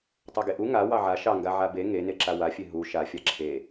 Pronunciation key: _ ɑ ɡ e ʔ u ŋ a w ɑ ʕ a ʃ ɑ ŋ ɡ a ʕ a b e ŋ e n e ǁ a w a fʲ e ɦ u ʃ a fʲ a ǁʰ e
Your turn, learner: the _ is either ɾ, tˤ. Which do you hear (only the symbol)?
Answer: tˤ